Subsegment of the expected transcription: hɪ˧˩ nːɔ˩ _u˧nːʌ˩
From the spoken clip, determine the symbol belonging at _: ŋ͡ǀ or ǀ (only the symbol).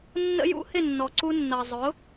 ǀ